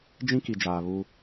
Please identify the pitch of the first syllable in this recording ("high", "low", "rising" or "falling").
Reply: high